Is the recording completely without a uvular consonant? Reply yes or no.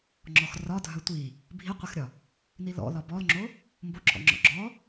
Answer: no